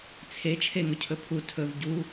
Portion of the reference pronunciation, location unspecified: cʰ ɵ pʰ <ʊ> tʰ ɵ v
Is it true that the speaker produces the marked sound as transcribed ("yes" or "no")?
no